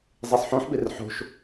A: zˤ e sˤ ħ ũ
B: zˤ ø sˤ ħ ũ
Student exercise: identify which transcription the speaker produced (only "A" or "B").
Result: A